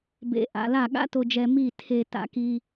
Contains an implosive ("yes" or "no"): yes